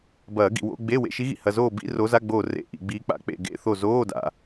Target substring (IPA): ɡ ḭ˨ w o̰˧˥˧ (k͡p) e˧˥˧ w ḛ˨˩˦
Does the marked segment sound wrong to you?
yes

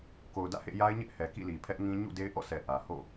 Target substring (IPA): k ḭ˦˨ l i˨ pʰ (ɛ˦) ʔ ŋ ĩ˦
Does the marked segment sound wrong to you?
no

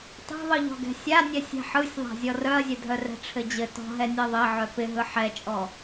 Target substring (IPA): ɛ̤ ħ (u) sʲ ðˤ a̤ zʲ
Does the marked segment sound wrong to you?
yes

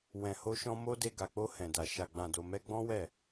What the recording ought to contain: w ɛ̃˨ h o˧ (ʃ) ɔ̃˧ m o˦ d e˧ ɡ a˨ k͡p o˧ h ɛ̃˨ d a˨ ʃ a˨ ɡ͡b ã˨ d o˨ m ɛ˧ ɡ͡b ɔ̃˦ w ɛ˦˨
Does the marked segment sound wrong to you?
no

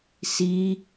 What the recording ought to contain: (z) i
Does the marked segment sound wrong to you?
yes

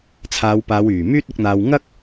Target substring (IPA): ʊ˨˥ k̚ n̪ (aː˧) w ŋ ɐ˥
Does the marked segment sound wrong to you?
no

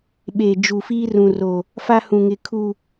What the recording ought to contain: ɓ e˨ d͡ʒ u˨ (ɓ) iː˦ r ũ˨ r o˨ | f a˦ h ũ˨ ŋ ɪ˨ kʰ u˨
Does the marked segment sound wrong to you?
yes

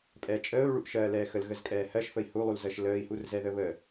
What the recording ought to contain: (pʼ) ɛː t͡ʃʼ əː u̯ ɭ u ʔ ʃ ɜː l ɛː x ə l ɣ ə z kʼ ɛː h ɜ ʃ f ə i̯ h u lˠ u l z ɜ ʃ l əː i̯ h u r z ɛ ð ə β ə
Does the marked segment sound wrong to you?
no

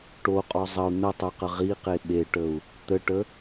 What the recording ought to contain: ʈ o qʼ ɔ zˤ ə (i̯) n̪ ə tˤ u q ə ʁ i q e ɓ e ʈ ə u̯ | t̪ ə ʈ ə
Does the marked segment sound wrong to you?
yes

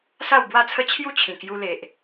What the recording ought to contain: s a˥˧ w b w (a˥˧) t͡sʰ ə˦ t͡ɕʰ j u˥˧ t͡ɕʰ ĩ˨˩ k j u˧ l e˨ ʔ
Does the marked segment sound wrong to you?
no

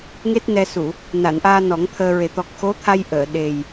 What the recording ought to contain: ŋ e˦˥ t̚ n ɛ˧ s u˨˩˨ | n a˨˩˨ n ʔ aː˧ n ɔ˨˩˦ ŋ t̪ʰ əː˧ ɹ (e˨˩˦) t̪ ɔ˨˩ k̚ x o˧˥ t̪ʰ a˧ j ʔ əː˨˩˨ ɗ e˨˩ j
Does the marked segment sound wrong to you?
no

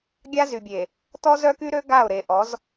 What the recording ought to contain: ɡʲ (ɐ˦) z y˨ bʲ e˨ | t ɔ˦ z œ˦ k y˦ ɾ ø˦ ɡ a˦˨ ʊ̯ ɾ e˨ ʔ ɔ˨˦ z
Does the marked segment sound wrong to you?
yes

